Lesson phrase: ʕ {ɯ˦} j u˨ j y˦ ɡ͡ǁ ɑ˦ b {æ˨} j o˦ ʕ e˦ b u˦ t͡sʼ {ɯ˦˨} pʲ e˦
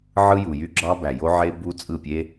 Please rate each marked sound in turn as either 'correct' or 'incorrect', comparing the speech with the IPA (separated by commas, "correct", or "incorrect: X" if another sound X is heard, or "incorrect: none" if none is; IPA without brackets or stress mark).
correct, correct, correct